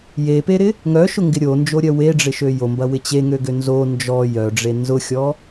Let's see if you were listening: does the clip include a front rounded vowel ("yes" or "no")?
yes